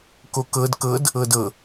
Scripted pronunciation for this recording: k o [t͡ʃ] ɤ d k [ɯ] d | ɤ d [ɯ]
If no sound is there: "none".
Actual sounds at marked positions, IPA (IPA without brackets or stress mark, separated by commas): k, ɤ, ɤ